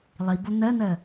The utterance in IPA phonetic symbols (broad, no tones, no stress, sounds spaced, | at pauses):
lˠ i b o n̪ ɜ n̪ ɜ